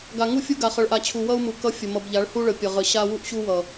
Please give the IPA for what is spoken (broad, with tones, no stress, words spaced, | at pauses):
ɡa˨ŋu˦fʲu˦ɡa˨ χʌ˨ɭʔa˨t͡ɕʰu˨ wʌ˦u̯mu˨ kʌ˦fʲə˨ mʌ˨bʎa˨˦ɭhu˦ɭə˨ pʲʌ˨ʁə˨˦ ɕa˦ wu˦ʔɕu˦wʌ˨